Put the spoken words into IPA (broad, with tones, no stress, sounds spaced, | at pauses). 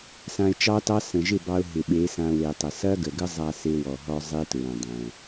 s ã˧ ɪ̯ t͡ʃ ɑ˦ t ɑ˦ s ə̃˨ ʒ ɪ˦˨ b ɑ˧ ʊ̯ ɦ ɪ˨ ɓ e˨˦ s ã˧ w e˨ tˤ ə˨ s ɐ˦ ɡ ə˨ ɡ ə˦ zˤ a˧ s e˦ w ɔ˨ ɦ ɔ˦ zˤ e˦ t ɹ ɛ̃˨ dˤ ɛ̃˨